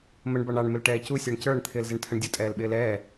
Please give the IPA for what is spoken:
məɳbɑɳ ɑɳmɪl ʈɛːcu sʲə˞ɳcə˞ɳ t̪ʰɪːlzɪɳtʰəɳdʲʊ tʼɛːlɓɪːlɛː

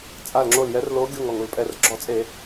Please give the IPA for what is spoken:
t͡sʼa˧˩lŋ͡ǁo˧˩ljɛ˨˦rlo˨˦ ɡʲo˧˩ŋ ɔ˧˩ŋu˧˩lpʼɛ˧˩r ɡ͡ǁɔ˧˩˧t͡sʼe˧˩˧

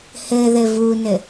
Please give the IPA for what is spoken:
hɘðɘ vunɘ

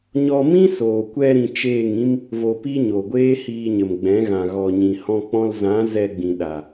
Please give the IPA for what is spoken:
ɲɔ˧mĩ˦soː˨kʷɛ˧ ɾĩ˧t͡ʃeː˦˨ŋĩ˦m | vo˧pi˦ɲo˨ɡʷeː˦ hiː˧ɲə˨mɡ͡bɛ̃˨˦ɣã˨ ɣɔ˨ɲĩ˨hɔ̃˧k͡pɔ̃˧l zã˨˦ zɛ˧ɡ͡bĩ˨ ɗa˨

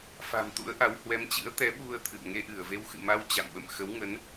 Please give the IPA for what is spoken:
fa̤˨˩m t̪ṵ˧˥ə̯ʔa˨˦w hwɛ˨˦mt͡ɕɨ̰˧˥ə̯ t̪ɛ˨˦ɓu˧ə̯ t̪ʰɨ̰˧˨ə̯ ŋe˧ʔɨ˧˩ə̯ve˧w xɨ̰˧˨ma˧w t͡ɕa̰˧˨mɓə̰˧˨m xə˨˦wŋə˨˦n

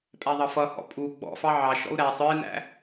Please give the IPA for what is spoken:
pʼæðˤʌfʌhɔ̰ pʼu ɡ͡bɔ̰ fɑʕɑʃɔ̰u̯ ɾæsˤ ə˞i̯næ̰

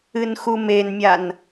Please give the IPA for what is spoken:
ɨnxumenmʲan

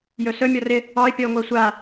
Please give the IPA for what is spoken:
jɵsɵ mʲɔrɪ | ɔɪ̯ pʲɔʊ̯ŋʷɛsʷa

